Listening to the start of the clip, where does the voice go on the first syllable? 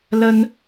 high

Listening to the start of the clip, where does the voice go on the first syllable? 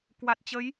low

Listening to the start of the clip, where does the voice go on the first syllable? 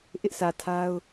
high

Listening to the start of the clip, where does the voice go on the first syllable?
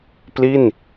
falling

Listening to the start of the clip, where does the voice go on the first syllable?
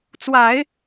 low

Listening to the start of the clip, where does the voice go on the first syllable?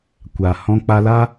low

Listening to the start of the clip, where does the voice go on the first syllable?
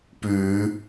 rising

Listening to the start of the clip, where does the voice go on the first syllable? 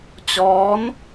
rising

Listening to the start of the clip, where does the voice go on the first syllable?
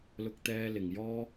high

